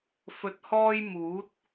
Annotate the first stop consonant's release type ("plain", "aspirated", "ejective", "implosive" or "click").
plain